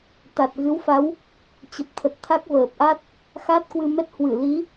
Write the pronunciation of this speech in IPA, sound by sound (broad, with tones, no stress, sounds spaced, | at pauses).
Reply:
t̪ a˨˩ t̚ ɣ ɨ˨˦ w f a˨˦ w | t͡ɕ ə˨˩ p̚ t̪ʰ ə˨˩ t̚ t̪ʰ a˦˥ k̚ v əː˨˩ p̚ ʔ a˦˥ t̚ | x a˦˥ t̚ k w ɨ˧ m ɛ˦˥ t̚ h w ɨ˧˩ l i˨˦